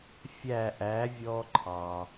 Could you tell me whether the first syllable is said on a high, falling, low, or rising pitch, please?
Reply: falling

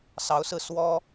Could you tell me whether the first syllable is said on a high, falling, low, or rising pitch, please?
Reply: rising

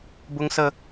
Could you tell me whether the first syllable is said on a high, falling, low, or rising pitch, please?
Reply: high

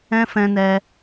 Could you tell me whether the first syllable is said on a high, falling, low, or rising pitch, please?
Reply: high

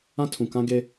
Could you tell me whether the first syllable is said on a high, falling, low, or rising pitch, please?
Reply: high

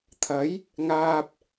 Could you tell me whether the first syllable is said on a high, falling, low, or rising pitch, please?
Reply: rising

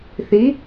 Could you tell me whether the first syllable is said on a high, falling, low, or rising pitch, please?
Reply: rising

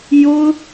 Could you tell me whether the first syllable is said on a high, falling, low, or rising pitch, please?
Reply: high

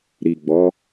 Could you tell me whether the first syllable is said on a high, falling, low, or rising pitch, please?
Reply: low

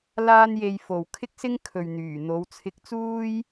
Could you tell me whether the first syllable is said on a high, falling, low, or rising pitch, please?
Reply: high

